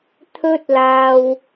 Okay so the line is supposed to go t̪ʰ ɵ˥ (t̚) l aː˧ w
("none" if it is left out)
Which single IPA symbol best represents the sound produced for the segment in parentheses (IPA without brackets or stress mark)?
t̚